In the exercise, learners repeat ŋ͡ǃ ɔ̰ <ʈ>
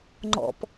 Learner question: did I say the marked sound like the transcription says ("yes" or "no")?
no